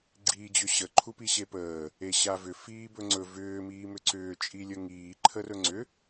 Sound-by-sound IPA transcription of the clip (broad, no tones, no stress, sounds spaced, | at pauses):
ɡ͡ǀ iː d͡ʑ ʏ ɕ ə ǃʰ u p i ɕ e p əː | e ɕ a v ʏ f iː b ɵ ŋ͡ǀ ɵ v ʏː m iː m ʏ ǀ ʏː t͡ʃʼ i lʲ ə ŋ iː ǃʰ ə r ɵ ŋ͡ǀ ʏ